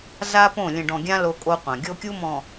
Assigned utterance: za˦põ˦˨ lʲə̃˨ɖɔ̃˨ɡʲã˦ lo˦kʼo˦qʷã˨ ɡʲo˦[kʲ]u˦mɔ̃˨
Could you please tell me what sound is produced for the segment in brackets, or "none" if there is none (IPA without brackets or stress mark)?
kʲ